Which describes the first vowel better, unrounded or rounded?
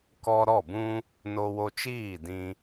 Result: rounded